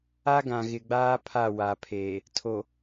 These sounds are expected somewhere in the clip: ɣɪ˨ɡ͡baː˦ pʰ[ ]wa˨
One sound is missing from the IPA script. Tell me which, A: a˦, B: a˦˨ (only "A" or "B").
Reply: B